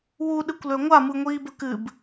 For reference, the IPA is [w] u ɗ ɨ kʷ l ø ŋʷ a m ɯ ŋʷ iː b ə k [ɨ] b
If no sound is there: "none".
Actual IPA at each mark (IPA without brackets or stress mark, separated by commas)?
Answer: w, ɨ